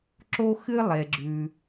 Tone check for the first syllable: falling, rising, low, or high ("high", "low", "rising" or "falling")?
high